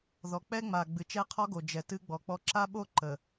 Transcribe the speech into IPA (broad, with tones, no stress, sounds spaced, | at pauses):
ð ɔ˨ k͡p ɛ˦ ŋ͡m a˨ ɡ͡b ɨ˨ t͡ʃ ɛ˦ qʰ ɔ˦ ɡ o˨ d͡ʒ ɛ˨ t ɨ˦ ɡ͡b ɔ˨ k͡p ɔ˦ ǁ a˦ ɓ o˦ ǃ ə˨